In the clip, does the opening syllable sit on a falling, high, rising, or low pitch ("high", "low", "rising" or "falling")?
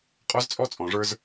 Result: high